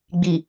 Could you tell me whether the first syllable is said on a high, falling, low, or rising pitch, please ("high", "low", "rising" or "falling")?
low